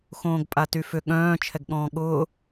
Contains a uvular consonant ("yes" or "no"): no